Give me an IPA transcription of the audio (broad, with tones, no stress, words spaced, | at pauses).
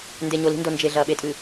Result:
nde˨ɲo˨li̤˦ndo˨ nd͡ʒe˨ ɮɐː˨ɓe˦tʼɨ˨